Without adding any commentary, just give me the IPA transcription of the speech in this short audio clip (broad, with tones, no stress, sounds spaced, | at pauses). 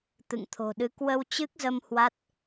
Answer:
t̪ ɨ̰˧˨ ŋ t̪ʰ o̤˨˩ ɗ ɨ˨˦ k w ə˧ w t͡ɕ ɨ˦˥ k̚ z ə˧ m h w a˦˥ t̚